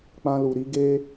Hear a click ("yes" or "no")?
no